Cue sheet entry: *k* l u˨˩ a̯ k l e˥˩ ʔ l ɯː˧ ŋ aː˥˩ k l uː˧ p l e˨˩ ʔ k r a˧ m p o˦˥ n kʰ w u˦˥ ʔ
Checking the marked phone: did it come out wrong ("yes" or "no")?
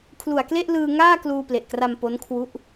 yes